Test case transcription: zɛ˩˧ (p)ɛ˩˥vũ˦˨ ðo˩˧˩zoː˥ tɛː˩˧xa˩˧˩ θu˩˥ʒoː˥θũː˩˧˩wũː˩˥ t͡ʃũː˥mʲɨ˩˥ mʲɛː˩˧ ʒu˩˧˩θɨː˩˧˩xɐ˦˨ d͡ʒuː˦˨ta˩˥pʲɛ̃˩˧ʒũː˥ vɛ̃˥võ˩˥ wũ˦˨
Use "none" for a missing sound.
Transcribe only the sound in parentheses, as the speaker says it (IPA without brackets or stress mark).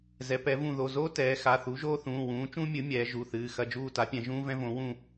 p